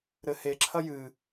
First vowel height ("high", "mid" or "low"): mid